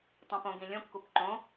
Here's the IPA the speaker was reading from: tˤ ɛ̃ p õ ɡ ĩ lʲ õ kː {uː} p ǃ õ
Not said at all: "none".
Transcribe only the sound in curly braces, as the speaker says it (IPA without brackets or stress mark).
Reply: u